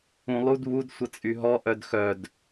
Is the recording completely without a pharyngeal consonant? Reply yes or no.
yes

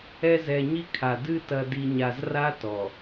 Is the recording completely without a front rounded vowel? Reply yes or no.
yes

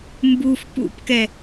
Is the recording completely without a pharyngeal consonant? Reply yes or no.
yes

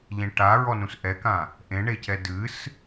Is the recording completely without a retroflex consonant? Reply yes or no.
no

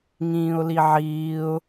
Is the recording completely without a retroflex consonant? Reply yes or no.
yes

